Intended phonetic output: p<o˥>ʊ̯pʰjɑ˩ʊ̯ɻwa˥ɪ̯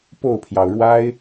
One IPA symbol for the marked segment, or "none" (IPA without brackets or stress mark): o˥˩